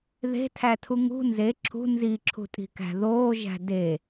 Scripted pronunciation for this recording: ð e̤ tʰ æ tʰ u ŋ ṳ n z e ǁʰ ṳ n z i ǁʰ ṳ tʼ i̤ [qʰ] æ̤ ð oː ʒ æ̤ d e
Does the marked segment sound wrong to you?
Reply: yes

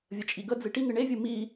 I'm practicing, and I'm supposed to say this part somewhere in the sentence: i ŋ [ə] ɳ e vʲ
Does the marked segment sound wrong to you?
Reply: yes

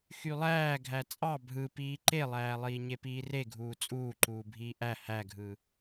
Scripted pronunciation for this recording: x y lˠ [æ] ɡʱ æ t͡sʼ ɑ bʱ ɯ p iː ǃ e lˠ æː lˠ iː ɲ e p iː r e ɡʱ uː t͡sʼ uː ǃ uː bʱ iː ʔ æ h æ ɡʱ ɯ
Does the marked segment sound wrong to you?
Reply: yes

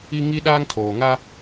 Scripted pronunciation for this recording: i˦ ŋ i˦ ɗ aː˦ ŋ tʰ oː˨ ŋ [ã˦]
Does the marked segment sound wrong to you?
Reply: yes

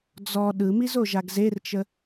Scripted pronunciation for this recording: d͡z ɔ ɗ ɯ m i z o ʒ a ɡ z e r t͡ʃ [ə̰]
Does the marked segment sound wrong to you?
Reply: yes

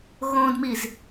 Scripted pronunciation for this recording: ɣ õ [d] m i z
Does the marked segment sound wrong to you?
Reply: no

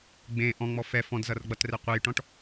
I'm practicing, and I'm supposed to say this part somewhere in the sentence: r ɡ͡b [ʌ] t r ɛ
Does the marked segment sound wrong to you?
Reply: no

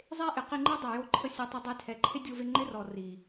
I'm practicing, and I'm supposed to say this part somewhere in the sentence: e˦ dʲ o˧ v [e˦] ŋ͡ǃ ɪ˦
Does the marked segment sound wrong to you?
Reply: yes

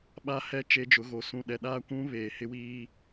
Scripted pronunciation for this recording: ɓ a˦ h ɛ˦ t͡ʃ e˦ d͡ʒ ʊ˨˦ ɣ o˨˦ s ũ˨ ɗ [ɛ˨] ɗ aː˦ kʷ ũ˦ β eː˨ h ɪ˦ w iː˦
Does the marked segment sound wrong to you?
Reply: no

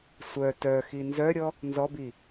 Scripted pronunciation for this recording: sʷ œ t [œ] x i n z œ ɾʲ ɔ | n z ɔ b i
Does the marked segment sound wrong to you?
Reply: no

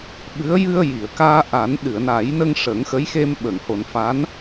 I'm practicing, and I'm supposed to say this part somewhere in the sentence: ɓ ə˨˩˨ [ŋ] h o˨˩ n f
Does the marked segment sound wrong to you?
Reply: no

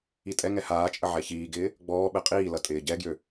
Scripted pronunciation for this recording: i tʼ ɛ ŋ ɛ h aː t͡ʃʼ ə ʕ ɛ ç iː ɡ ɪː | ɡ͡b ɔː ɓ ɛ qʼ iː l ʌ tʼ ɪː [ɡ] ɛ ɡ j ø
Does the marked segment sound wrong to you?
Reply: yes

